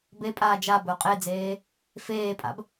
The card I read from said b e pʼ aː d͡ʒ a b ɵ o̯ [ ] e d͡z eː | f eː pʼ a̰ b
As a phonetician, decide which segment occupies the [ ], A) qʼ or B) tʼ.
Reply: A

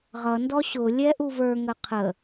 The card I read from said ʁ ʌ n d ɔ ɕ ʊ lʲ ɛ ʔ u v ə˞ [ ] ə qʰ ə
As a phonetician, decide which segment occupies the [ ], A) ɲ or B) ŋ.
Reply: B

